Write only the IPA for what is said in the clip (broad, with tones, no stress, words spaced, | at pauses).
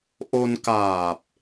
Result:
ʔo˧nkaː˨˩p̚